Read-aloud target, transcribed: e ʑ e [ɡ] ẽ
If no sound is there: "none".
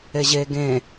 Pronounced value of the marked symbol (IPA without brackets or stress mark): ɡ